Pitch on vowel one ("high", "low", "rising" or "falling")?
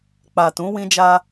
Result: low